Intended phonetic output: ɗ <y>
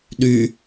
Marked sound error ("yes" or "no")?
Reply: no